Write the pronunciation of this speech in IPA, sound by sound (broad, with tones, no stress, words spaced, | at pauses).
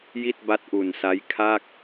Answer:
ji˥˩t̚ba˦˥t̚ʔu˨˩nsa˦˥j kʰa˥˩k̚